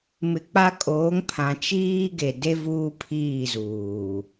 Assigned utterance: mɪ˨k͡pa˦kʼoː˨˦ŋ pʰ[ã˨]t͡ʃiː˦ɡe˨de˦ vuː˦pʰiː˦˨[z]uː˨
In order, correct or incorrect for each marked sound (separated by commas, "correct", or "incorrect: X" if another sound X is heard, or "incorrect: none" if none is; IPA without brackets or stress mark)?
correct, correct